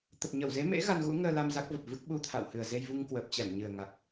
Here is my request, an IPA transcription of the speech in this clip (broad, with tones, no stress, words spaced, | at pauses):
t̪ə˨˩p̚ɲə˧˩wze˨˦mḛ˧˥ ɣa˧nɣṵ˧˥ŋəː˧la˧m za˦˥k̚və˨˩p̚vɨ˦˥k̚ ɓu˧t̪ʰa̰˧˨w hɨ˨˩ə̯ze˧jvu˧ŋ kwəː˨˩p̚t͡ɕɛ˧˩mɲɨ˨˩ə̯ ŋa˨˩k̚